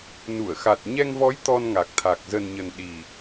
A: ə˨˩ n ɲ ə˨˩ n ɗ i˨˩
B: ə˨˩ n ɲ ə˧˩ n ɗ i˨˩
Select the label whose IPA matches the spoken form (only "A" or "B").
A